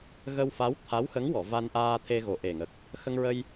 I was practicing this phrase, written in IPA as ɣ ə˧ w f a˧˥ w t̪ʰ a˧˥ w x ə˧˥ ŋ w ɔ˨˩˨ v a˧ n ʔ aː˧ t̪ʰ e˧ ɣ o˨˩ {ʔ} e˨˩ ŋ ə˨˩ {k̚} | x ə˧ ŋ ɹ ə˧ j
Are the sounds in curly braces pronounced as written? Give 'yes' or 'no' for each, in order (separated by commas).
yes, yes